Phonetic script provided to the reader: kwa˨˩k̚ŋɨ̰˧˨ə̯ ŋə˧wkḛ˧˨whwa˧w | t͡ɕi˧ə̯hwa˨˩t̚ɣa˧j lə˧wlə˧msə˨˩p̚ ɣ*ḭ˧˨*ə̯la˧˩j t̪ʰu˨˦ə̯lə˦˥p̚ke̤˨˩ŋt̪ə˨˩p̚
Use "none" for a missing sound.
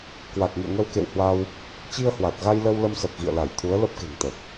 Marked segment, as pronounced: ḭ˧˨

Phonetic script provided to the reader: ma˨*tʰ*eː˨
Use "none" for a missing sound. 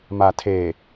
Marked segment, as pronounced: tʰ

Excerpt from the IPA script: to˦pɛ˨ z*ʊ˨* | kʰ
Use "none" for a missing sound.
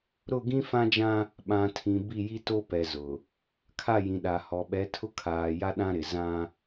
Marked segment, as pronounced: ʊ˨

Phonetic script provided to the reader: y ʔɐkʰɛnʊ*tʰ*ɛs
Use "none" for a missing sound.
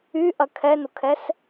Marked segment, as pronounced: kʰ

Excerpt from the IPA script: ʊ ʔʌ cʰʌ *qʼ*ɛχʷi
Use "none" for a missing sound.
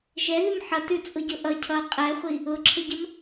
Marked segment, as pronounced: qʼ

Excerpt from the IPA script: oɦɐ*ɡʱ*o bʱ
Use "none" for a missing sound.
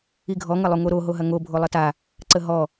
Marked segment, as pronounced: ŋ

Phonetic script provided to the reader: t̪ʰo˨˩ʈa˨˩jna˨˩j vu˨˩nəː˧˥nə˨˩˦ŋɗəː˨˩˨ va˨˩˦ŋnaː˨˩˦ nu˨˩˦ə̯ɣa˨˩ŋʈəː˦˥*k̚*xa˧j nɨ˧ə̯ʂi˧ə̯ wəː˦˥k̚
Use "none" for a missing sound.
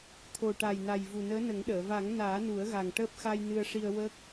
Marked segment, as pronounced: p̚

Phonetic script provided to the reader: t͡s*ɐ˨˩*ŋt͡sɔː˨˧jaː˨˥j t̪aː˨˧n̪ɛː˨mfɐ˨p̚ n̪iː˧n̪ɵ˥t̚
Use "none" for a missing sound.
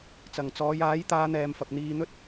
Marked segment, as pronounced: ɐ˨˩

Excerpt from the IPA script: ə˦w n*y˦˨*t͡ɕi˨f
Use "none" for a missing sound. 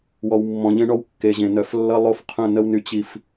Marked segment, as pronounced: y˨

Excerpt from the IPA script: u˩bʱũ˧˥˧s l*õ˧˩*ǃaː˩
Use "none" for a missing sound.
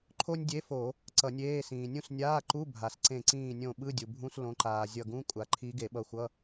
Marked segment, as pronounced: õ˨˦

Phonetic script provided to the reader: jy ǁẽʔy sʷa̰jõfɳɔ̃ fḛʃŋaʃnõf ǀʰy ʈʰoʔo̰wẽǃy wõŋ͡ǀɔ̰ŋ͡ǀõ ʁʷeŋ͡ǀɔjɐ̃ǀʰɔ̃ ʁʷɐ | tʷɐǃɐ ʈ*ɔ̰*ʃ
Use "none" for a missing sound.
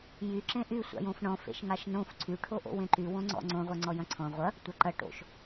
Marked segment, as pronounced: o̰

